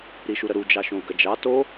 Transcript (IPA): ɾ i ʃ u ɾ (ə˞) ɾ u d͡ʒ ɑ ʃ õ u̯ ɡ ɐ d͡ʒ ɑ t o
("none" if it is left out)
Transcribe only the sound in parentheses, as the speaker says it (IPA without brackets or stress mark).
ə